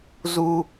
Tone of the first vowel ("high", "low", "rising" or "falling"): high